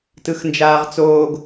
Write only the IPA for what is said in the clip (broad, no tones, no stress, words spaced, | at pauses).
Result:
tɯxnd͡ʒaːʁt͡soːɡ